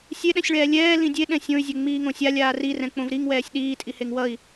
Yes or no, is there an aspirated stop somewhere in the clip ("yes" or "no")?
no